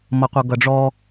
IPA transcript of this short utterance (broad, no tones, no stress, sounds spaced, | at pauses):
m ʌ qʷ ʌ ɡ ʌ ɖ͡ʐ ɔ